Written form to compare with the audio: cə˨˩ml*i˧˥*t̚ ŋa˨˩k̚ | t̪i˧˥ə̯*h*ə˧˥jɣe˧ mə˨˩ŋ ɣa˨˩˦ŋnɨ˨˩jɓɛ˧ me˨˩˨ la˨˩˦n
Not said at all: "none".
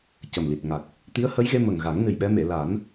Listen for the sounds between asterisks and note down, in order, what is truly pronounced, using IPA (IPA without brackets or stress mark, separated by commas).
i˨˩, h